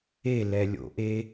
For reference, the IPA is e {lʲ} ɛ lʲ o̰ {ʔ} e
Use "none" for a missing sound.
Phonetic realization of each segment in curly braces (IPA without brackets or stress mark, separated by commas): l, ʔ